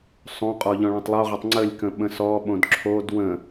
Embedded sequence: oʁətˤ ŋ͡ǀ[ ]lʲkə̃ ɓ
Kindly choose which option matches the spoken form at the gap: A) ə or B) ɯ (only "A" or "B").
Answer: A